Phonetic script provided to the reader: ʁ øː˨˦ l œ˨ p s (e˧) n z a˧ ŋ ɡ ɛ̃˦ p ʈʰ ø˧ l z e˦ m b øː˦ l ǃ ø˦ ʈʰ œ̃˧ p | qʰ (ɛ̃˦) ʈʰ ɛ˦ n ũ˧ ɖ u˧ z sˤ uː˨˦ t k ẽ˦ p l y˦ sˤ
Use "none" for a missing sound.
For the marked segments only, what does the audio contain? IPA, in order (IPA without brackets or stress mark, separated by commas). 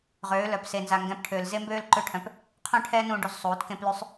e˧, œ̃˦